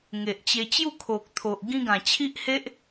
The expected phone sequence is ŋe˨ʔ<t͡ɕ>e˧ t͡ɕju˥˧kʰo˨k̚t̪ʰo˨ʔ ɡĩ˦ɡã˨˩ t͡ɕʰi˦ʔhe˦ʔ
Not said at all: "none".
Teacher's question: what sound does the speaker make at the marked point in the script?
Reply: t͡ɕ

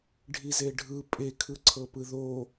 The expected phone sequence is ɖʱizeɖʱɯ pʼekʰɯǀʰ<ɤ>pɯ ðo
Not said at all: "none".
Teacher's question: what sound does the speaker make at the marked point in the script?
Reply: ɤ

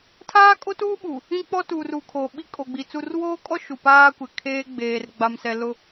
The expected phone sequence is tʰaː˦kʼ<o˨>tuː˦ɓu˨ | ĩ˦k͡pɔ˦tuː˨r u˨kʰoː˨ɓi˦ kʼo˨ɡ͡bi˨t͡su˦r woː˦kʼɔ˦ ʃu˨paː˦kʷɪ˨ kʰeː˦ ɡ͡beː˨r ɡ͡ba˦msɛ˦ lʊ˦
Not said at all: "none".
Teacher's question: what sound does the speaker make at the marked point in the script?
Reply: o˦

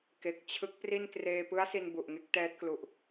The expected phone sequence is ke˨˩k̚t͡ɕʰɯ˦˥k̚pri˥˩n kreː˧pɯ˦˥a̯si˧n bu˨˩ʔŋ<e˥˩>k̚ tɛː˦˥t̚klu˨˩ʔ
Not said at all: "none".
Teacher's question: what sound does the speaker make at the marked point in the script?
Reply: e˦˥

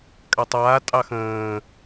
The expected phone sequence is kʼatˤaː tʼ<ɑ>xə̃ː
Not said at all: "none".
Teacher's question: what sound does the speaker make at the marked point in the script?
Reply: ɑ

